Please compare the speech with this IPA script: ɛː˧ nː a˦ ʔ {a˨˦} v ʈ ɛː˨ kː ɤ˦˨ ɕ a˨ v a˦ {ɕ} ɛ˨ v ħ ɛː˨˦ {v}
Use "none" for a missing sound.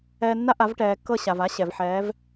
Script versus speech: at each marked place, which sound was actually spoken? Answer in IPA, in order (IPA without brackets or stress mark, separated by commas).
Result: a˨˦, ɕ, v